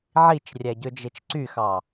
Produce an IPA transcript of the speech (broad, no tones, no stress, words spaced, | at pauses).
ʕit͡ʃrʲæɟø d͡ʒet͡ʃǀyxɑ